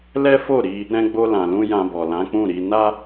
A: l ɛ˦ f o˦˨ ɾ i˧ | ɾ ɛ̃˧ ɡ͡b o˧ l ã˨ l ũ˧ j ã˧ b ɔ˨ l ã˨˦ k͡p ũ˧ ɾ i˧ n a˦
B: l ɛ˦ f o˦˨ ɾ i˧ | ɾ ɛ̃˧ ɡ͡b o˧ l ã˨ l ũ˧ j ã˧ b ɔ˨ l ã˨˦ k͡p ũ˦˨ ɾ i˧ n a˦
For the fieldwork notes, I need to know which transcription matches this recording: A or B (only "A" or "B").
B